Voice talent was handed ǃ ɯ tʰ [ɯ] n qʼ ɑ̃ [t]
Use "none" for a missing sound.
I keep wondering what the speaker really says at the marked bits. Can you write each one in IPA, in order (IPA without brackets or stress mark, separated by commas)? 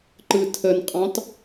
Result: ə, t